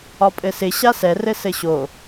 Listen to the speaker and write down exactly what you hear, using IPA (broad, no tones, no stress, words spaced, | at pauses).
ɒpʼɘsɪ ɕasɛ rɘsɘɕo